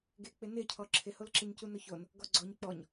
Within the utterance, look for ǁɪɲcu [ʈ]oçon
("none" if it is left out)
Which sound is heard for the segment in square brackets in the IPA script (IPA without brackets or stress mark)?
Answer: n